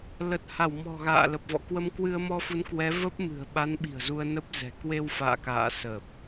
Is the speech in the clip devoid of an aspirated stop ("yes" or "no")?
yes